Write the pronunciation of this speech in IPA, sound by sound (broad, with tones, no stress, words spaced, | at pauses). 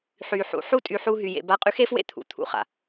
ħy˨ħṵ˨ ħu˦ tʼy˧ħu˧ ɦy˨jḛ˨ ba˧qʼy˧xe˦fwḛ˦˨ t̪ʰṵ˨t̪ʰṵ˧χa̰˨